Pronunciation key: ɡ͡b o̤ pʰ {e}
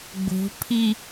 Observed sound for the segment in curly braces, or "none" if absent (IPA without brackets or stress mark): i